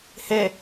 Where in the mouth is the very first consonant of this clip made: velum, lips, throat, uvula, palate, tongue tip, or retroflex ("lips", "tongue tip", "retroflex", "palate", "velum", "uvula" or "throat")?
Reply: throat